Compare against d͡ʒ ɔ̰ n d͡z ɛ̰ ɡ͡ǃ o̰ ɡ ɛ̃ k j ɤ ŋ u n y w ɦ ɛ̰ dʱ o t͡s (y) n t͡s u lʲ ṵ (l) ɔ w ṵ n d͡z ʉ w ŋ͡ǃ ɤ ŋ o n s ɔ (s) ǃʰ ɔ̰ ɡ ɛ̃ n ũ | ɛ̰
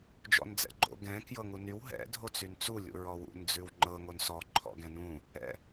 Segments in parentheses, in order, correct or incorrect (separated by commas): correct, incorrect, incorrect